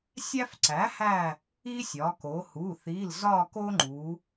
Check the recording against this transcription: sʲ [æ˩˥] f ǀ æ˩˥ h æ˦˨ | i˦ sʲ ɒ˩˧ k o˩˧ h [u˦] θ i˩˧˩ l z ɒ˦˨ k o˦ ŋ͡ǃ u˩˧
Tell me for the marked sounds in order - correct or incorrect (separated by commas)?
incorrect, incorrect